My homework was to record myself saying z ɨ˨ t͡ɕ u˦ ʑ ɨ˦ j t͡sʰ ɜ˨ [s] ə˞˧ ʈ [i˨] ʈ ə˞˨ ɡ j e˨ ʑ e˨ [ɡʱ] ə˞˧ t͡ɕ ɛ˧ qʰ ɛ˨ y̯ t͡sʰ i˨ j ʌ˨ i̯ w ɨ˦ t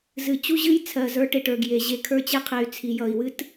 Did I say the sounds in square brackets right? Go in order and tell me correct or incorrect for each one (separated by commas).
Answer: incorrect, incorrect, incorrect